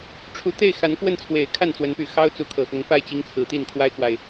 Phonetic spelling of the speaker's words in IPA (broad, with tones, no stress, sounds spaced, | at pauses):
ʈ͡ʂʰ u˧˥ t̪ e˥˩ ɪ̯ x a˧˥ n k w ə˥˩ n t͡sʰ w e˨˩ ɪ̯ kʰ a˥˩ n t͡s w ə˧˥ n p y˨˩ x ɑ˥ ʊ̯ t͡s u˧˥ kʰ ɤ˨˩ x ʊ˧˥ ŋ p a˥˩ ɪ̯ t͡ɕ i˧˥ ŋ t͡sʰ ɹ̩˨˩ t̪ i˥˩ n kʰ w a˥ ɪ̯ k w a˨ ɪ̯